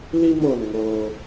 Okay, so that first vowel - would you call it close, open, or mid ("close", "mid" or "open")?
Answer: close